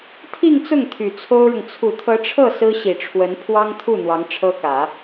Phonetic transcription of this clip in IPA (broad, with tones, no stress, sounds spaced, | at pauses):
t̪ʰ i˥˧ ŋ t͡s ʊ˥˩ ŋ t̪ʰ y˨˩ t͡sʰ o˥ ʊ̯ ɻ ʊ˨ ŋ t͡sʰ u˨˩ t̪ʰ ɤ˧˥ ʈ͡ʂʰ ɤ˥˩ s ɹ̩˥ ɕ i˨˩ ʈ͡ʂʰ w ə˧˥ n pʰ w ɑ˥ ŋ t̪ʰ u˥˩ n̪ w ɑ˧˥ ŋ ʈ͡ʂʰ ɤ˥ k ä˨˩˦